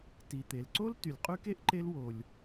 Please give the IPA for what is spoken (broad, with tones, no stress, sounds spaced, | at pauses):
t i˩ t̪ e˩ l ǀ o˥ l t y˩ lʲ qʼ y˦ k e˦ ʔ ǃ e˦ l w o˨ lʲ